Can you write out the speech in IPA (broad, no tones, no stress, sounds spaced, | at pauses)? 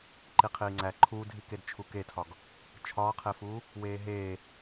ǃ i qʰ iː ŋ͡ǀ æ ǃʰ uː dʱ i k e d t͡ʃʰ u k e tʰ ɒ ɡ | t͡ʃʰ ɒː qʰ e f uː | w eː ɦ eː